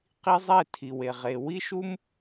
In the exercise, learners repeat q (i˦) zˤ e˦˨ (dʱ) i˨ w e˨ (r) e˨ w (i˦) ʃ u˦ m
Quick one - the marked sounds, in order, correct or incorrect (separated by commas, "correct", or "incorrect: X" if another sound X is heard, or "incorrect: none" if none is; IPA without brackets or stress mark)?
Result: correct, incorrect: tʰ, incorrect: ʁ, correct